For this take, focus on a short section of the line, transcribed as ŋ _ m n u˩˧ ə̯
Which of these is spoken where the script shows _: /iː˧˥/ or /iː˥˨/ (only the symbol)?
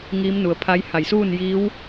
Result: iː˧˥